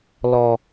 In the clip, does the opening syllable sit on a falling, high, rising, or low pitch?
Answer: high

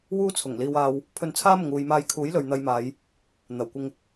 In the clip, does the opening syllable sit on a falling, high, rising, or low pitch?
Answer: high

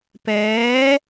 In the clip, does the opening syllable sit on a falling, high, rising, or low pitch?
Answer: rising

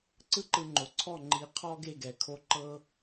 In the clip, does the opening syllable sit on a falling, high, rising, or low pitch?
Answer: high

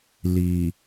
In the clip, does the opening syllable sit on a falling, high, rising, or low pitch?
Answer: low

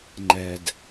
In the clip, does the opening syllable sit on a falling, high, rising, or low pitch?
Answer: low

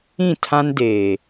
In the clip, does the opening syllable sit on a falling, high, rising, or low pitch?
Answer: falling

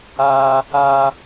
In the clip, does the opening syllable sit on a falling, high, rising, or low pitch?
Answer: high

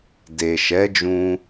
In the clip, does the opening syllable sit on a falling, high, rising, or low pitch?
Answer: low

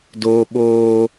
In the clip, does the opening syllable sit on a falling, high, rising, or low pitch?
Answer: high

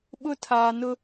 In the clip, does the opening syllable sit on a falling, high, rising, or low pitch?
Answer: high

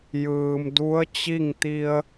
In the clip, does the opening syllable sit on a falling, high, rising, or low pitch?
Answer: low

